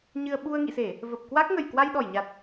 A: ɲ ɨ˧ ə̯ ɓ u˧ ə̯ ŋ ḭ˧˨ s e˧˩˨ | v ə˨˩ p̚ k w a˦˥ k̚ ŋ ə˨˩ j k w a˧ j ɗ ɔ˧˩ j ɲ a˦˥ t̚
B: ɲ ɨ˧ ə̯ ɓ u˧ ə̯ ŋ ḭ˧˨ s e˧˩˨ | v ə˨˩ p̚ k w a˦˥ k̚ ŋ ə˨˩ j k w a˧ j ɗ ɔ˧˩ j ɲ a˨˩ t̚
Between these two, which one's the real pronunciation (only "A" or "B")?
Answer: B